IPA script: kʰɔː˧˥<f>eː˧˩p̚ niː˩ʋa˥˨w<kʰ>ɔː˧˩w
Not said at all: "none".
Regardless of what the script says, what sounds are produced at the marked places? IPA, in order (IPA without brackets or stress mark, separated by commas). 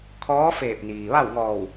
f, ŋ